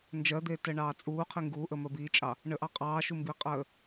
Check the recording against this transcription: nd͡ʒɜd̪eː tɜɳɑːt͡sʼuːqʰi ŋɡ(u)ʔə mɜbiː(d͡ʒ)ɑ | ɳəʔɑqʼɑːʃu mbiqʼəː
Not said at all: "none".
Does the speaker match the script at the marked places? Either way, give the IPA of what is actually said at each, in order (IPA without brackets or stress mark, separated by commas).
uː, t͡ʃʼ